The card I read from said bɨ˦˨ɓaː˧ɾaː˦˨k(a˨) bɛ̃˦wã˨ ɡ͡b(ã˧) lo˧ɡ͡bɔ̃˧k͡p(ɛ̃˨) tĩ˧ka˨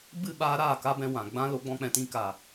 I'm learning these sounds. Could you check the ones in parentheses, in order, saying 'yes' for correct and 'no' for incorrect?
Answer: no, yes, yes

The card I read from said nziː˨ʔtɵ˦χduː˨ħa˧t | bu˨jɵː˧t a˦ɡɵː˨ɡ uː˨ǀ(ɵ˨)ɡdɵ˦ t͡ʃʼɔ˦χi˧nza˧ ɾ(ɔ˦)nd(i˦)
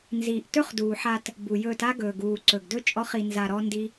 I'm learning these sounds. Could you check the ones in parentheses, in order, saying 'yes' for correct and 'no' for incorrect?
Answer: yes, yes, yes

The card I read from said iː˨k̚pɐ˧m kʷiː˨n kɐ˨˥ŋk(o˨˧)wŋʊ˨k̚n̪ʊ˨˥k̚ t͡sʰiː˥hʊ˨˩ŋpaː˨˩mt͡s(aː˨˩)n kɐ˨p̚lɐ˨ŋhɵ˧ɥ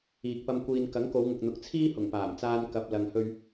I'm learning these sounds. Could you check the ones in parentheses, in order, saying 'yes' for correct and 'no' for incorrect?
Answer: yes, no

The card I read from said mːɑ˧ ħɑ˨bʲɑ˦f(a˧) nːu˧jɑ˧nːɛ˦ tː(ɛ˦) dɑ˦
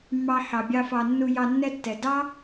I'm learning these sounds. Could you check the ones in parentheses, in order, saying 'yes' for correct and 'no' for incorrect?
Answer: no, no

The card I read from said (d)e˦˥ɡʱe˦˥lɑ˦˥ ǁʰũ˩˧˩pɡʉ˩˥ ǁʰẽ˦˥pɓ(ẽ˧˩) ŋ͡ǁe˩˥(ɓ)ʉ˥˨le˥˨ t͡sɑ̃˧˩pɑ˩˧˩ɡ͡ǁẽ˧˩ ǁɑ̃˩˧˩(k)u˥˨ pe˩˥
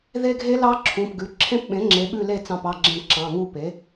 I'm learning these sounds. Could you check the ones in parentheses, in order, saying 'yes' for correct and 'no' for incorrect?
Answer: no, no, yes, no

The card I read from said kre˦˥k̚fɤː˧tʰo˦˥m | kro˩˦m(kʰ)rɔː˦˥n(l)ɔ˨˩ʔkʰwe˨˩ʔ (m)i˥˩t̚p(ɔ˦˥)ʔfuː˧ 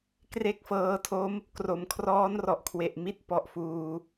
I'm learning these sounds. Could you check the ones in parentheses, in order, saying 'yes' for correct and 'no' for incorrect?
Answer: yes, no, yes, yes

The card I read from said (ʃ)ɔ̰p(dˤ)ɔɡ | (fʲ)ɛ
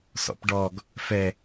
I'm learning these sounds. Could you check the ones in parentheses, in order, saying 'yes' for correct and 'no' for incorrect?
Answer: no, no, no

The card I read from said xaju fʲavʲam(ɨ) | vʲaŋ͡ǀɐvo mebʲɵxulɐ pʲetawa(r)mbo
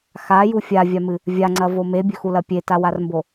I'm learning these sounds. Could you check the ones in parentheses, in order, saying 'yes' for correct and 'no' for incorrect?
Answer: yes, yes

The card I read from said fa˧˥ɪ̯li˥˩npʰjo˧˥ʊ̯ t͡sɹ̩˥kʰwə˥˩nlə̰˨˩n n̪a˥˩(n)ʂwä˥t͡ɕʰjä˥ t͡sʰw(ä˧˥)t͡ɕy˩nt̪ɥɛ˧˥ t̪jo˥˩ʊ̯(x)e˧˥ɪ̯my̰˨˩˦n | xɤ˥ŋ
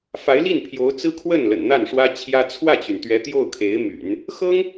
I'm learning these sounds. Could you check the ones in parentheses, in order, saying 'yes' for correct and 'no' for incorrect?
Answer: yes, no, no

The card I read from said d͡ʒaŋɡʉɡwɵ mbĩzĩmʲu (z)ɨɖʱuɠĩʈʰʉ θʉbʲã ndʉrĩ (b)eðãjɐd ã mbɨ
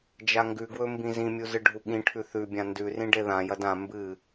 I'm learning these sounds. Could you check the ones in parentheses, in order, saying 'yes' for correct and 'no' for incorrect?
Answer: yes, no

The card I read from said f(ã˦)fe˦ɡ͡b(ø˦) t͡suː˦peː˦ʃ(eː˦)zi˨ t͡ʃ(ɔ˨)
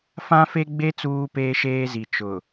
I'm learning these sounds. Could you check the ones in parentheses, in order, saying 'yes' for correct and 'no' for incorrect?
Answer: yes, no, yes, no

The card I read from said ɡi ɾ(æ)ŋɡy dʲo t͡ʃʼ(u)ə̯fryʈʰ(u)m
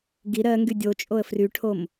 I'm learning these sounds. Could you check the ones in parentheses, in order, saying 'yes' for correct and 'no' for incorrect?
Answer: no, no, no

